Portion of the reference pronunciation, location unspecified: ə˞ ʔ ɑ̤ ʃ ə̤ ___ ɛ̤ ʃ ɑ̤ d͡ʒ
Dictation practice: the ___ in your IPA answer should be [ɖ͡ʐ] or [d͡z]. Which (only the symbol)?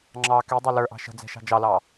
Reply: d͡z